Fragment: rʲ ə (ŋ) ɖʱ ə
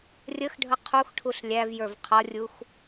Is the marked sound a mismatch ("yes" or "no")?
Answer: yes